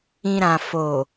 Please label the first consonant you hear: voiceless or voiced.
voiced